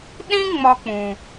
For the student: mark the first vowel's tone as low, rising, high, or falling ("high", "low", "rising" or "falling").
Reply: high